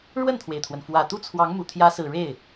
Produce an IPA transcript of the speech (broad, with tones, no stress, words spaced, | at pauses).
ɻwə˥˩nt̪ʰwe˩ɪ̯t̪ʰwə˩nfwä˨˩ t̪u˥˩t͡sʰwɑ˧˥ŋmu˨˩ t̪ʰjä˧˥sɹ̩˨˩ ɻe˥˩ɪ̯